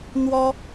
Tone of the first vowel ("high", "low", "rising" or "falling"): high